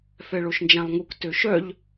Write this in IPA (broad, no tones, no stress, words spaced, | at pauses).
fɛɭoʃnd͡ʒãlˠŋuk tøʃœʎ